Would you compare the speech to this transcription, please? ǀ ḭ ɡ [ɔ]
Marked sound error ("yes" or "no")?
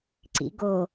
yes